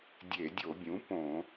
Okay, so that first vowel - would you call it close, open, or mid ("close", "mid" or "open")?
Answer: mid